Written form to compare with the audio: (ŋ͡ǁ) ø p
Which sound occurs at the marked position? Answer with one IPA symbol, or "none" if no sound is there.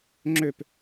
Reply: ŋ͡ǁ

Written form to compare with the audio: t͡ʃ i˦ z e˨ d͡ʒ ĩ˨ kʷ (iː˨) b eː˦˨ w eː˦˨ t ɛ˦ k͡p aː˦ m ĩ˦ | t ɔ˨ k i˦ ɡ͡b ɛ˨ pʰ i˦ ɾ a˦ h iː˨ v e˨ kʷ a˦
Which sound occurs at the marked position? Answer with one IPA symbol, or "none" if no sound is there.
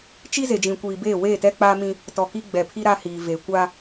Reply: iː˨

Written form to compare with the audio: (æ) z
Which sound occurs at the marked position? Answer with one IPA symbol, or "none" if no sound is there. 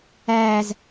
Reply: æː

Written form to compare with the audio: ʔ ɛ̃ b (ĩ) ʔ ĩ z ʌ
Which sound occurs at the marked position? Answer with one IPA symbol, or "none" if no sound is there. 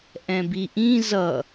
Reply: i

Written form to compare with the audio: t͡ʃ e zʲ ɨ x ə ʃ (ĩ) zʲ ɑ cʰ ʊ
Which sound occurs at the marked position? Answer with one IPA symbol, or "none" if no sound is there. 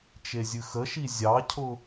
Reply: i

